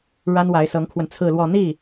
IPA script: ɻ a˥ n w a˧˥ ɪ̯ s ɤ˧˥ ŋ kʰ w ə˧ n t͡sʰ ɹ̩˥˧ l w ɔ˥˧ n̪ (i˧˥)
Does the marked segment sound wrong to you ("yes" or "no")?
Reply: yes